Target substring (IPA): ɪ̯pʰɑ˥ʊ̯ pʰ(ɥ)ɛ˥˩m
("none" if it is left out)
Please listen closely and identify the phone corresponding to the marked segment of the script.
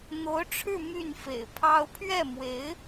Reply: ɥ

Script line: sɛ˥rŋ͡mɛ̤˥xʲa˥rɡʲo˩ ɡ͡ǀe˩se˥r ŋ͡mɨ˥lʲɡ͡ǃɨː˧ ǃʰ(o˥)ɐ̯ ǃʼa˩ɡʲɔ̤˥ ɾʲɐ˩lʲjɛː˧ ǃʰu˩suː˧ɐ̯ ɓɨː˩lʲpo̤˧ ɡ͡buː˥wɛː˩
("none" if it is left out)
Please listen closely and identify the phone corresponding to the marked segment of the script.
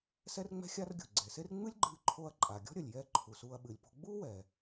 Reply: o˧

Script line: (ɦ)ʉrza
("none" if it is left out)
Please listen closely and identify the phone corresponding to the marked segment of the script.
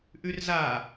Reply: ʔ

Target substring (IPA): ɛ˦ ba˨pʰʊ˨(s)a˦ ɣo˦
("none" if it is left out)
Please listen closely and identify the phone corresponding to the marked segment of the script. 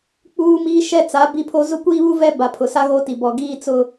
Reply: s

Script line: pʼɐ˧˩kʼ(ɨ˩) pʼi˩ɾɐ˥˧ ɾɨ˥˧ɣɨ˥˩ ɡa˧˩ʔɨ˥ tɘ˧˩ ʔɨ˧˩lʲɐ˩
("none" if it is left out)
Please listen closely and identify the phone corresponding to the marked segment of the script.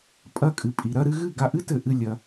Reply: ɨ˩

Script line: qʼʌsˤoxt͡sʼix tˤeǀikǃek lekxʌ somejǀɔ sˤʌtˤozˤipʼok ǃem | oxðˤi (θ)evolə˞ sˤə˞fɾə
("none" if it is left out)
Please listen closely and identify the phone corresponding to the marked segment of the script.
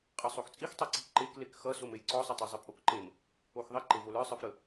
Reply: ǃ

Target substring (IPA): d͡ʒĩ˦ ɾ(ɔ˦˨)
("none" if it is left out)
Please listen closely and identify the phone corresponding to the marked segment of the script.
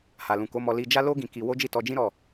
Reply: ɔ˦˨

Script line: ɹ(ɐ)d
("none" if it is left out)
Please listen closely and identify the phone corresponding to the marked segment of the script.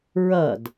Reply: ɐ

